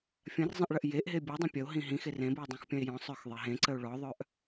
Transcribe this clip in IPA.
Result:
fʲ ɐ̃ r zˤ ɐ̃ ʔ ɭ ɐ ʔ j e ʔ ɦ e bʲ ɔ dˤ ɐ̃ pʲ ɐ o̯ ɦ ĩ ɦ ĩ x e r ẽ b u o̯ dˤ ũ x pʲ ɐ̃ e̯ j ɔ̃ sˤ œ x ðˤ e ɦ ẽ ǀ ə o̯ ɭ ɔ ðˤ œ ʔ

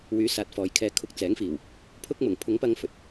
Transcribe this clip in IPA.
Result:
w yː˨˥ s aː˨ t̚ f ɔː˨ j kʰ ɛː˧ kʰ ʊ˧ k̚ t͡s ɛː˨˥ ŋ f iː˨˩ w | pʰ ʊ˥ k̚ m ʊ˨˩ ŋ pʰ ʊ˨˥ ŋ p ɐ˧ ŋ f ɵ˨ t̚

